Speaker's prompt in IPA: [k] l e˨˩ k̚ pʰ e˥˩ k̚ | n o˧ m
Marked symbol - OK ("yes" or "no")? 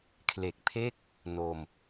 no